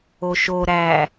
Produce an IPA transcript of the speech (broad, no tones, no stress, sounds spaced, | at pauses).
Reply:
o ʃ o ɾ æ